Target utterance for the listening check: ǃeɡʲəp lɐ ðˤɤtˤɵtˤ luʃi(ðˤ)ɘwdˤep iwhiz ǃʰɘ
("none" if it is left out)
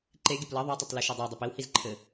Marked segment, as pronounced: dˤ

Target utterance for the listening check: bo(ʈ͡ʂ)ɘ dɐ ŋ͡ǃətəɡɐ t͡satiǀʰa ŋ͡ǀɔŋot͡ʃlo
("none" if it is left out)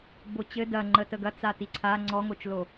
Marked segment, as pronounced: t͡ɕ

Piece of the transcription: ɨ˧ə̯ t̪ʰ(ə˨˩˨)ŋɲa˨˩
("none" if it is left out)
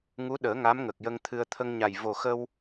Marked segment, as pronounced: ə˧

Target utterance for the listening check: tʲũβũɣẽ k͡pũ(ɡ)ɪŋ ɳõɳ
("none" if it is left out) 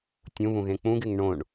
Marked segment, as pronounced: ɡ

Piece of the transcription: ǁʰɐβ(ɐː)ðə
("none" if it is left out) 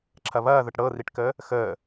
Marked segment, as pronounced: ɐː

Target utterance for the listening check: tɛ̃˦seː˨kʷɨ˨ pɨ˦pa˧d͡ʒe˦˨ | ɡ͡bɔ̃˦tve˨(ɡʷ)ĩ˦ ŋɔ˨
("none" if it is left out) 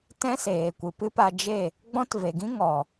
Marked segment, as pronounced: ɡ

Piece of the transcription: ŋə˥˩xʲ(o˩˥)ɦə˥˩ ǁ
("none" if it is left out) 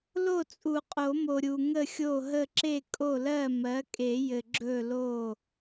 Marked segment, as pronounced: o˥˩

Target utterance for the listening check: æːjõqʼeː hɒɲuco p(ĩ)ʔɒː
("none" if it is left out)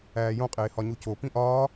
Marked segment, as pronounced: ĩ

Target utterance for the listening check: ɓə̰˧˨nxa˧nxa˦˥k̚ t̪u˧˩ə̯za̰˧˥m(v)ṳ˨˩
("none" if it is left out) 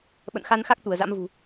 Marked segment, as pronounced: v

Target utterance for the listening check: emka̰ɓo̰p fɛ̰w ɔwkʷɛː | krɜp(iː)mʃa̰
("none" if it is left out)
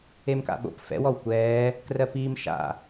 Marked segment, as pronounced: iː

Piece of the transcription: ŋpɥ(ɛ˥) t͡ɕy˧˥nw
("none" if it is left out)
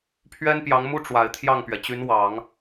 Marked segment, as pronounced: ɛ˩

